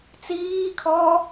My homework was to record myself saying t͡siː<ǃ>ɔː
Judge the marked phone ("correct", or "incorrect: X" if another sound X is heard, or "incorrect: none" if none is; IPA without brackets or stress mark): incorrect: kʰ